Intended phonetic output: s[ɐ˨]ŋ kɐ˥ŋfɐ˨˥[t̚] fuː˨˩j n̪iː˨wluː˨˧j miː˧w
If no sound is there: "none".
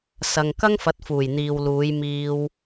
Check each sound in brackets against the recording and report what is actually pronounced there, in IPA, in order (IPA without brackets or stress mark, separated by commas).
ɐ˨, t̚